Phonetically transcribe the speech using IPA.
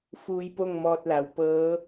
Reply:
f uː˧ j p o˥˨ ŋ m ɔː˧ t̚ l a˩˧ w p ɤː˧˥

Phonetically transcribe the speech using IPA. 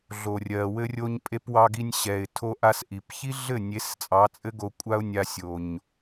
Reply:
ɮ o˨ rʲ ɜ˨ w ɘ˦ rʲ o˦ ɲ pʼ e˦ p w ɑ˧ ɡ i˧ nʲ ɕ ɛ˨ ɪ̯ tʰ o˦ ʔ a˦ s ʔ i˨ p ç i˦ ɮ ɘ˦˨ nʲ e˨˦ s t͡sʼ ɑ˨˦ t͡sʼ ɘ˦ ɡ o˧ kʷʼ a˦ ʊ̯ nʲ a˧ sʲ o˨ ɲ

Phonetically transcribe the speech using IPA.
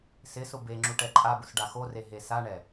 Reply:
s ɪ s ʊ b e ŋ͡ǁ u ʈ ɛ ǃʼ a b ʊ s ɖ a x o r e ɦ e s a ɳ ɛ

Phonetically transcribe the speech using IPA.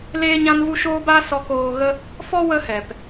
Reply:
l eː˦ ɲ ã˦ n v u˦ ʃ oː˦ b a˦ s ɔ˧ k oː˧ ɣ ə˦ | f ɔ˦ w ə˧ h ɛ˨ p

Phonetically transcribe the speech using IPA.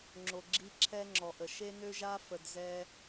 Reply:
ŋ͡ǁ o˨ ɡ͡ǁ i˧ ǁʰ ɛ˦ ŋ͡ǁ ɔ˨ ʔ ə˨ ʃ e˦ n ø˦ ʒ a˦ f ə˨ d z ɛ˦

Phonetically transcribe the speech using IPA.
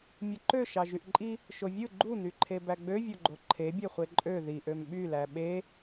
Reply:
mʲ ɯ ǃ ø ʃ ɑ ʒ y ʔ ǃʼ i | ʃ o vʲ ɯ ɡ͡ǃ u n̪ y ǃʰ e b æ ɡ͡b ø vʲ o ɡ͡ǃ o ǃʰ e bʲ e χʷ e ǃʼ ø ð i ʔ ø m ɓ y l æ ɓ e

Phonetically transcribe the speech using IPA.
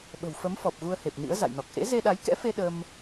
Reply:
ɓ ə̤˨˩ w f ə˨˦ m f ɔ˨˩ p̚ ɣ u˧ ə̯ h e˨˩ p̚ n ḭ˧˥ ə̯ z a̰˧˨ j n ɔ˨˩ k̚ ʔ ḛ˧˥ z e˧ ɗ a˨˦ j k ɛ̰˧˥ f e˧ ɗ ə˧ m

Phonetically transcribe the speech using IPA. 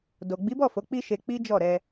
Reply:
d o˨ ɡ͡b i˨˦ b ɔ˦˨ f o˨˦ k͡p i˦ ʃ e˧ k͡p i˦ d͡ʒ ɔ˦˨ ɾ ɛ˧

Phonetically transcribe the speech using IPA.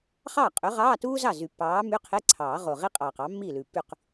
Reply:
χ ɑː˥˩ qʼ ø˨˥ ʁ ɑː˧˥˧ t uː˥ z ɑ˥˩ z y˨˩˦ pː ɑː˨˥ m y˧˥˧ qʰ e˧˥˧ ǀʰ ɑː˨˩˦ ʁ o˨˩ ʁ i˥ qʼ ɑː˨˩ q ɑ˨˥ mː iː˥˩ l ʉ˨˩ pː y˥˩ q

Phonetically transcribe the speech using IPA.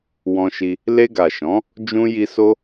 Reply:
w ɔ̃˧ ʃ i˧ | l e˧ ɡ a˨ ʃ ɔ̃˨˦ | d͡ʒ ũ˦ j i˧ s o˦

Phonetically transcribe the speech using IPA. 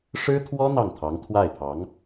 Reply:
ʂ ɻ̩˥ t̪ʰ w ɔ˥ n̪ ɑ˥˩ ŋ t̪ʰ ɑ˧˥ ŋ t̪ʰ w a˥˩ ɪ̯ pʰ ɑ˧˥ ŋ

